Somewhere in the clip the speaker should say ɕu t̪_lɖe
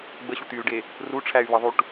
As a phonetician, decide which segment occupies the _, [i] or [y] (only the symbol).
y